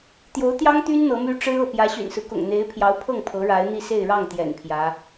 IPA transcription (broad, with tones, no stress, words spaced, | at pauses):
t̪jo˧˥ʊ̯t̪jɑ˥ŋt̪y˥n n̪ɤ˧˥my˥ ʈ͡ʂɻ̩˥ɤ˥˩ pjä˧˥ɕy̰˨˩nsɹ̩˦ kʊ̰˨˩ŋn̪e˧˥ɪ̯pʰjɑ˧˥ʊ̯pʰɤ˥˩ŋ pʰɤ˧˥ɻa˧˥ɪ̯n̪i˥˧ se˥˧ɪ̯ɻɑ˥˩ŋt̪jɛ̰˨˩n pʰjä˧˥